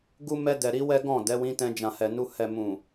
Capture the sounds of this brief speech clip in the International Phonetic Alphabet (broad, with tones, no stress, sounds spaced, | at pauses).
ɡ u˦ m ɛ˧ d ɛ˨ ɾ i˨˦ w ɛ˦ ɡ ɔ̃˦˨ d ɛ˨˦ w ĩ˧ t ɛ̃˧ d͡ʒ ã˨ h ɛ˨ n u˧ h ɛ˨ m ũ˨